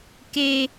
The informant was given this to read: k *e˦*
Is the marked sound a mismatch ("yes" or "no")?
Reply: yes